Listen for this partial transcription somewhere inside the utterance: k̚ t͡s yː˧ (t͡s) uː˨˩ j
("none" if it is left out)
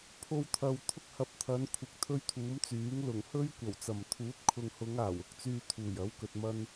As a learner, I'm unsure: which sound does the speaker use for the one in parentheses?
t̪ʰ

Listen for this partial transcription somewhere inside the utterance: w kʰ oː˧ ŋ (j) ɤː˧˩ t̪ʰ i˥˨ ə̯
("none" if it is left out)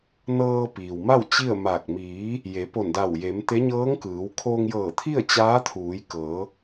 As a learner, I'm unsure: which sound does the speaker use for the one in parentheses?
j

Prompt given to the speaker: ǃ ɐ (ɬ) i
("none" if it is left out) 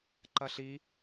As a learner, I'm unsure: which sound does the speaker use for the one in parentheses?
ɬ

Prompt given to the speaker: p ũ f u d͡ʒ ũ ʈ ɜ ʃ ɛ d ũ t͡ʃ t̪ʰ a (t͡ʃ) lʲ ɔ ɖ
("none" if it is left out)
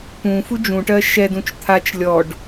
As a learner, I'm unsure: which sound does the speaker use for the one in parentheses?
t͡ʃ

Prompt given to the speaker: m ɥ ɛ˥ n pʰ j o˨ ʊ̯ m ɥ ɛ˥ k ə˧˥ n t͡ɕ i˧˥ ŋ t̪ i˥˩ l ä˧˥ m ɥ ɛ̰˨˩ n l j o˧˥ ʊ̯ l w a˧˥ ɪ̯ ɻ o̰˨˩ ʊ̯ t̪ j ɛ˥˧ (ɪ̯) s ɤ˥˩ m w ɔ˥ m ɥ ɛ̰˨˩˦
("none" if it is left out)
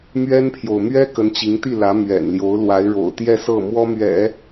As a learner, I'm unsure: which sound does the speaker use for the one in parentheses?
none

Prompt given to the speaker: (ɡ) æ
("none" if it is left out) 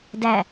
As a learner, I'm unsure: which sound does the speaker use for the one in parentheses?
d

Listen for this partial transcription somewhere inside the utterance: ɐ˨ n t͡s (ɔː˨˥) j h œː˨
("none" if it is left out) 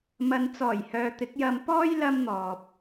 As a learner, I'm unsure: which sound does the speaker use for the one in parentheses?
ɔː˨˩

